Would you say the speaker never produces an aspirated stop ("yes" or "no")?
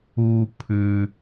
no